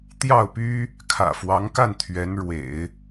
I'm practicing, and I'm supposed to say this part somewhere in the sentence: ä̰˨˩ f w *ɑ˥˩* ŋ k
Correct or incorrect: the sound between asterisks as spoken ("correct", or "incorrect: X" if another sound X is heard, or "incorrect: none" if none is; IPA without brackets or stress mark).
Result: incorrect: ɑ˧˥